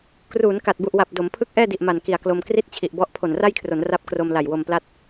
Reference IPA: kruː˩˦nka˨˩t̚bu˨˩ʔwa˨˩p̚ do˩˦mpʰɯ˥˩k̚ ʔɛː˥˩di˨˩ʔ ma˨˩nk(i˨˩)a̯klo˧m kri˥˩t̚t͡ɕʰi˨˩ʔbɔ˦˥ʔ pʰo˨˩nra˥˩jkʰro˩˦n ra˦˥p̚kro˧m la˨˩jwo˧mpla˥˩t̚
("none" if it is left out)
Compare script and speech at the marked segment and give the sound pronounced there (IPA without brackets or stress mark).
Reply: i˨˩